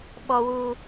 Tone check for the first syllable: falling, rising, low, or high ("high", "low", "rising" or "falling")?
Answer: high